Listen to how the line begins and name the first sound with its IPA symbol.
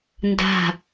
n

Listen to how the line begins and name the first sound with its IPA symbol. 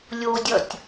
lʲ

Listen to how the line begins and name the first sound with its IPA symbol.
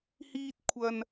h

